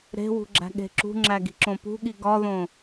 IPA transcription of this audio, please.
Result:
ɾ e̤ w ṳ ɡ͡ǁ æ̤ ɠ e̤ ǁ ṳ ŋ͡ǁ æ ɡ i̤ ǁ õ p ṳ ɠ i ɡ ɒ ð õ

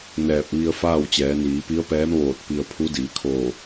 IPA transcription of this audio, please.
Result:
n ɛː˧˩ p̚ ʋ i˧ ə̯ f aː˥˨ w t͡ɕ ɛː˩˧ n iː˩˧ p i˧˥ ə̯ p ɛː˧˥ m ʋ oː˧˩ t̚ p i˧ ə̯ pʰ u˧˥ d iː˩˧ kʰ oː˧˩

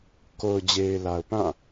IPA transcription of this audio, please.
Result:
k o˨ ʊ̯ d͡ʑ e˨ ɪ̯ l a˨ ʊ̯ p ã˦˨

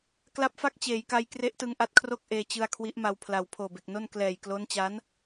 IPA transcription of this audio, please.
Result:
k l a˦˥ p̚ f a˥˩ k̚ t͡ɕ eː˩˦ j k a˧ j k r e˦˥ ʔ t ɯ˧ ŋ ʔ a˦˥ t̚ kʰ r o˥˩ k̚ ʔ eː˧ t͡ɕ ɯ˧ a̯ kʰ w i˦˥ ʔ m a˧ w pʰ l a˨˩ w pʰ oː˨˩ b e˨˩ k̚ n o˥˩ n k l ɛː˨˩ j k l o˦˥ n t͡ɕ a˦˥ n

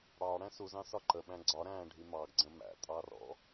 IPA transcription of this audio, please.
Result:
ɽ ɑ ɽ æ̃ s u z ɑ̃ s ɒ ǃ ə ɓ æ̃ ɡ͡ǀ ɒ ɾ æ̃ː ɖʱ i m ɑ ɡ ɡ͡ǀ ə̃ m æ̰ tʼ ɑ r ɔ̰

